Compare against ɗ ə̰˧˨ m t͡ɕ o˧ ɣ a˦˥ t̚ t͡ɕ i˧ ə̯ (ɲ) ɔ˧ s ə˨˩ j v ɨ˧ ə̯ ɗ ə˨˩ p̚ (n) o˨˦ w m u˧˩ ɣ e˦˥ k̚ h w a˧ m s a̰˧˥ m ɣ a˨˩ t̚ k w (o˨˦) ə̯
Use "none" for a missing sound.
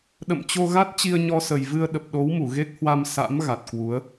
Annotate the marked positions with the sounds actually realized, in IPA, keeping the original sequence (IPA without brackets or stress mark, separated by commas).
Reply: ɲ, ɗ, u˨˦